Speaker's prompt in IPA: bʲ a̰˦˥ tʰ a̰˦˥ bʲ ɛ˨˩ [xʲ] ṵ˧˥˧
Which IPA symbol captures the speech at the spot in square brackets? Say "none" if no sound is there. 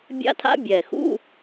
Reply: x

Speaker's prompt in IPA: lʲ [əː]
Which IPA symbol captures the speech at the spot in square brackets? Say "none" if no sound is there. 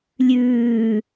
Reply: ʉː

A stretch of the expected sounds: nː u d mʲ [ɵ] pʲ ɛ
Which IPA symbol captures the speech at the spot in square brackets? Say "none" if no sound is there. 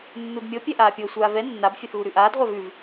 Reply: ɤ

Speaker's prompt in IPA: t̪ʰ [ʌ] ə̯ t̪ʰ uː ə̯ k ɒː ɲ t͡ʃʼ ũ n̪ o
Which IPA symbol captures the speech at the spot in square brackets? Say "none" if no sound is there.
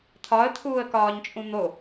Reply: ɒ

